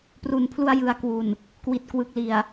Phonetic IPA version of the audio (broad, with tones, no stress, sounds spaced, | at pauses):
p r u˨˩ n pʰ l u˧ a̯ j ɯ˩˦ a̯ k w u˨˩ n | k w i˨˩ t̚ k w ɯ˨˩ k̚ l i˨˩ a̯